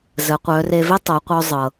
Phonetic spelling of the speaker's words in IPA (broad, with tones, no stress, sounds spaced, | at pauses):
z ə˩˧ qʷ œ˩˧ r e˧ v e˥ tˤ o˩˧ qʷ œ˧ zˤ ɤ˩